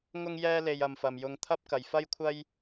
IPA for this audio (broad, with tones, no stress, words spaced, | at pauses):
ŋʊ˥ŋjɛː˥le˧j ɐ˨mfɐ˨mjʊ˧ŋ t̪ʰɐ˥p̚kɐ˨jfɐ˥jkʷʰɐ˥j